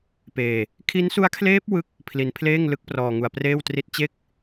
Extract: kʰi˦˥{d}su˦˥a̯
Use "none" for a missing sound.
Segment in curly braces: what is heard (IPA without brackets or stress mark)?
n